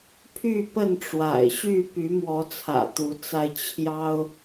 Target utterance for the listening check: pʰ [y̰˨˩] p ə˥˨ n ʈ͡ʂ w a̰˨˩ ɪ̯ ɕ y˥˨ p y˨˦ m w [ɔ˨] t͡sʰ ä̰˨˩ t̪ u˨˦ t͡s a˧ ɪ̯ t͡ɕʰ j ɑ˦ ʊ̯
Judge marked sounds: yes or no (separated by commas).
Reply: no, no